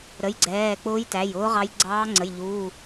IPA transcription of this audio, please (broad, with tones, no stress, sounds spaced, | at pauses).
ɾ ə˩˧˩ j ɡ͡ǀ ɛː˩˧˩ k͡p ʊː˧˥ j t æ˩˧˩ j ʊː˧˥ ʁ ɑ˧˥ j ɡ͡ǀ ɑː˧˥ ŋ͡ǀ ə˩˧˩ j ʎ uː˩˧˩